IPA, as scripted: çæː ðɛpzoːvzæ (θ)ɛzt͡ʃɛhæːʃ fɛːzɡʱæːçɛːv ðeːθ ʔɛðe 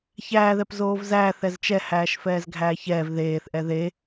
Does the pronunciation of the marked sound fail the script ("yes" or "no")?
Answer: no